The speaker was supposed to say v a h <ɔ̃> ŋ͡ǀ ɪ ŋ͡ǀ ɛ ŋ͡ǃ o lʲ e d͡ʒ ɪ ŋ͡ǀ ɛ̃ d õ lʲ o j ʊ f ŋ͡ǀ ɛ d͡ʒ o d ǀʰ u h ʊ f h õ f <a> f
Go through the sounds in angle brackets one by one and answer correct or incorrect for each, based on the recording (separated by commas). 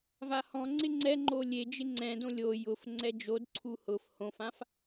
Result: correct, incorrect